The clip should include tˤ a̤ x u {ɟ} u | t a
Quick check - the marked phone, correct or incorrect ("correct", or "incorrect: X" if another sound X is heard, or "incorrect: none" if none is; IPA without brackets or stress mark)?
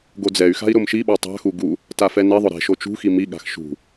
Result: incorrect: ɡ